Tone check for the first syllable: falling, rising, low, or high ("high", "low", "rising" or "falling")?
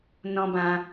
high